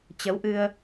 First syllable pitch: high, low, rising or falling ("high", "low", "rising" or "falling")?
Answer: rising